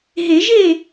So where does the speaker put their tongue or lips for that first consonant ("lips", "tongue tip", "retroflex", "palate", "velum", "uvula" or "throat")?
throat